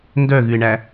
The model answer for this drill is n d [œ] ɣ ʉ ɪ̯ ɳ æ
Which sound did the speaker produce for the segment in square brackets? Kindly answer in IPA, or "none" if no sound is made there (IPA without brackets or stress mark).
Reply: œ